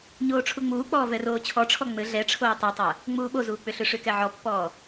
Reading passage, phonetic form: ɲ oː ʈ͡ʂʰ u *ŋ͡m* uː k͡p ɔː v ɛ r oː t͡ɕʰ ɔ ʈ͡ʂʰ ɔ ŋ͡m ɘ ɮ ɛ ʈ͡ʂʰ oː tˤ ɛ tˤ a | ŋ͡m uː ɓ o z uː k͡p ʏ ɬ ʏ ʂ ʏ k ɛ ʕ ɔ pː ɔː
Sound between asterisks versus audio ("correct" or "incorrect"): correct